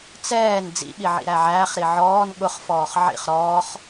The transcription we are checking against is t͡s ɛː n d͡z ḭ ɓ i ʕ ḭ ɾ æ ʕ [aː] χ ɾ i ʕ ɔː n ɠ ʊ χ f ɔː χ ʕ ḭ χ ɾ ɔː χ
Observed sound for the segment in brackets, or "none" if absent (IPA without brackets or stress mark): æː